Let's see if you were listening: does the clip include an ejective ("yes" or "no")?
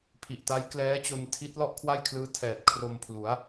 no